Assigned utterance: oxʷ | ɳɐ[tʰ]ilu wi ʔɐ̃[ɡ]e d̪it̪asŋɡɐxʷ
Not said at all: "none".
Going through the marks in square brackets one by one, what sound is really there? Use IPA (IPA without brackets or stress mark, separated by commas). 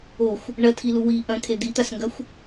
tʰ, kʰ